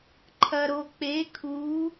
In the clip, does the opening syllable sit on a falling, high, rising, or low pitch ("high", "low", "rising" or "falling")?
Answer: low